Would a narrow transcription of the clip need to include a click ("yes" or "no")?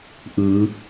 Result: no